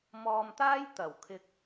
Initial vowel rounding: rounded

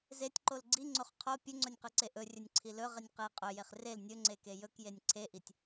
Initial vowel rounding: unrounded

